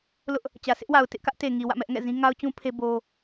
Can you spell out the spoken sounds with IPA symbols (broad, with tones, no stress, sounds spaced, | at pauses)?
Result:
l ʊ˦ ʔ | t͡ɕ ä˨ sʰ ɪ˦ ʔ w a˨ ʊ̯ t ɪ˦ ʔ k ä˦ ʔ t e˨ ŋ i˨ w ä̰˦˨ m ɛ˦ ʔ ŋ ɛ̰˦˨ z ĩ˦ ŋ a˦ ʊ̯ t͡ɕ ũ˦ pʰ e˦ b o˦